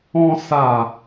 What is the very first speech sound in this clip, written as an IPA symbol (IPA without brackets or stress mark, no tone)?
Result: ɔ̃